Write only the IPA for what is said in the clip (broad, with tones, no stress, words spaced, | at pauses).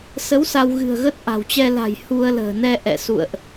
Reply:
sə˨˦w sa˧wɣɨ̤˨˩ə̯ɣə˦˥t̚ ʔa̤˨˩wt͡ɕɛ˧la̤˨˩j hu˧ə̯lə̤ː˨˩ nɛ˧ʔɛ̰˧˨sṵ˧˨ə̯ʔ